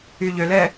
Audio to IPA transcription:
y ʎ ø l ɛ

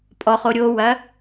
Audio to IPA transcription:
pʼ ɔ χ o ɾʲ o w ɐ

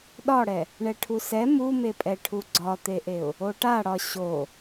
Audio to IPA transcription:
ɗ ɒ ɽ ɛ | ɳ ɛ ʈʰ u s ɛ m u m e pʼ ɛ ʈʰ u ɡ͡ǀ ɒ t̪ e ʔ e ʊ̯ | o ʈ a ɽ ɒ ɕ o

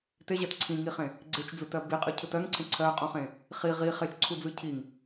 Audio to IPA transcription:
t e ʑ ɜ t ǀʰ ĩ ŋ i χ ẽ | ɡ͡ǀ e t͡ʃ d͡z ɯ t ɜ b i qʼ ɯ cʰ ɯ t ɜ ŋ ǀʰ ẽ ǀʰ ɜ qʼ ũ χ ẽ | χ i ʁ i χ e t͡ʃ ǀʰ u d͡z ɯ cʰ i ŋ

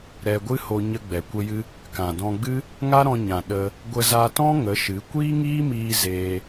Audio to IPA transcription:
ɾ ɛ˧ ɡʷ ɨ˦ h o˧ ɲ ə˧ ɡ͡b ɛ˨ kʷ ə˧ j ɨ˧ | k ã˨ d ɔ̃˧ ɡ͡b ɨ˦ | ŋ a˦ ɾ ɔ̃˧ ɲ ã˨ ɗ ə˧ | ɡʷ ə˧ z a˧ t ɔ̃˦ ŋ ə˨˦ ʃ ɨ˨˦ kʷ iː˦ ŋ iː˦ m iː˧ z eː˧

